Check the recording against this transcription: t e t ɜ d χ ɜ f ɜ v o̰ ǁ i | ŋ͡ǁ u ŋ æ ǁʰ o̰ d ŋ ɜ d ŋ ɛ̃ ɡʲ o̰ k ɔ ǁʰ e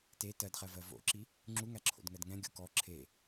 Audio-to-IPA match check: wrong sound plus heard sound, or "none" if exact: f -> v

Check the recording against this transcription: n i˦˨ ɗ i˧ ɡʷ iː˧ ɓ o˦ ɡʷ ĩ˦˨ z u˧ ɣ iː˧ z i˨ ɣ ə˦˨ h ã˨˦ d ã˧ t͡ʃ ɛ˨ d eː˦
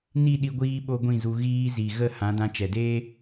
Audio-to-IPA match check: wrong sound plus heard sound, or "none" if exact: none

